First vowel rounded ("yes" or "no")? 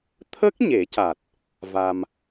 no